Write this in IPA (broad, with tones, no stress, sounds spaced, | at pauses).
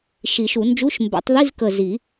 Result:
ʃ i˨˩˦ ʃ u˨˩˦ n d͡ʒ u˧˥˧ ʃ m b ɛ̰˨˩˦ tˤ ð i˧˥˧ z k ə˨˩ z i˨˩˦